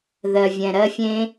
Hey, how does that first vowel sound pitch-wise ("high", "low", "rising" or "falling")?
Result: low